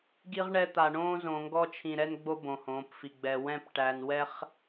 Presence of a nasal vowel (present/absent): present